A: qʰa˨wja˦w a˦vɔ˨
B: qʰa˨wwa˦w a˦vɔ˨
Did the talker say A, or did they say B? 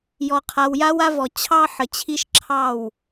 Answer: A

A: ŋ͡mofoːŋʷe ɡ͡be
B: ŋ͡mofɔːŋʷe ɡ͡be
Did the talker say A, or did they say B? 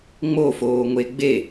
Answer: A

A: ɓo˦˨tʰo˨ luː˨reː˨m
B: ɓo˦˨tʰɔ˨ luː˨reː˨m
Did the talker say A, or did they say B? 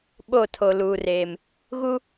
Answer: A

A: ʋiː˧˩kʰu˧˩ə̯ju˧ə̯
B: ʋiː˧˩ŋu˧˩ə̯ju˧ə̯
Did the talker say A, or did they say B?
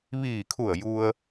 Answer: A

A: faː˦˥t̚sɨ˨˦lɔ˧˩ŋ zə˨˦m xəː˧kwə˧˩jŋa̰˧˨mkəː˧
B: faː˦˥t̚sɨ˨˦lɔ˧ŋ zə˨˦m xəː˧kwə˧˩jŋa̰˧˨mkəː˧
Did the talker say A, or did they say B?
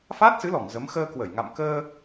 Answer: A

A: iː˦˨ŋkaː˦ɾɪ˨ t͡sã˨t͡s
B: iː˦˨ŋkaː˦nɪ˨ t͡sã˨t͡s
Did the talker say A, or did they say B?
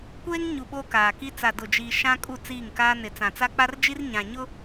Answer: B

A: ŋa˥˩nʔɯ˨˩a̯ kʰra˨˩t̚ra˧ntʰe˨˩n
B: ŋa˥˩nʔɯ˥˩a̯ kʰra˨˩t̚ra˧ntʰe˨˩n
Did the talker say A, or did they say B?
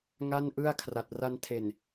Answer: B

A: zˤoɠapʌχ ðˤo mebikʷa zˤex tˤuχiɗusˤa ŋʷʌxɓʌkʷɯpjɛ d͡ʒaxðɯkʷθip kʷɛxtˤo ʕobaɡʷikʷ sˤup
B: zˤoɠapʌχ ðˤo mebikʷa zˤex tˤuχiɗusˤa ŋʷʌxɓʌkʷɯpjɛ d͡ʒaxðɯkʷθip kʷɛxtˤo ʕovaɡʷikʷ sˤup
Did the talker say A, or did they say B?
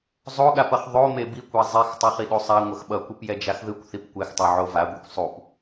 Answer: B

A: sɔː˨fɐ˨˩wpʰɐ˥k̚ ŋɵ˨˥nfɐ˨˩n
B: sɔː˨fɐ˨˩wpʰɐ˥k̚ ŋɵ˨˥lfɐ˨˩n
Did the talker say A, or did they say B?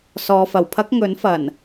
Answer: A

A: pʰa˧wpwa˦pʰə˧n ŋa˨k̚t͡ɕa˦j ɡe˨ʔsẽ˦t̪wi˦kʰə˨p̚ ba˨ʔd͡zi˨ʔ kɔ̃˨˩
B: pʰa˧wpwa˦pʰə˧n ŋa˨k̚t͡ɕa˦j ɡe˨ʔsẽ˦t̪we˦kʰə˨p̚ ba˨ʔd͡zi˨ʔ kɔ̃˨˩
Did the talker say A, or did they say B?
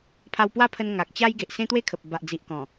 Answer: B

